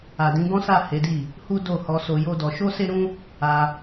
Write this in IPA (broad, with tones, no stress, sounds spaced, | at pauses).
a˨ d ĩ˨˦ ɡ ɔ̃˦ s a˦˨ h e˨˦ d i˦˨ | h u˦ d o˦˨ h ɔ˧ s o˧ j o˦ d ɔ˧ ʃ o˦ s e˦ ɾ ũ˦ | a˧